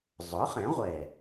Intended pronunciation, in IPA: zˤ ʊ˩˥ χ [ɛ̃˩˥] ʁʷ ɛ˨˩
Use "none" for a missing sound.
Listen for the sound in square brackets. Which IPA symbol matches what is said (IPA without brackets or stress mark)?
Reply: ɛ̃˩˥